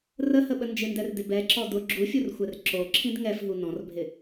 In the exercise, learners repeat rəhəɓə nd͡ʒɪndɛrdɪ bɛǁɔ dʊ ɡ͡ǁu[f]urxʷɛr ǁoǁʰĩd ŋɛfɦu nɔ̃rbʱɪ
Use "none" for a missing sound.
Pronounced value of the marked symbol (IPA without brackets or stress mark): fʲ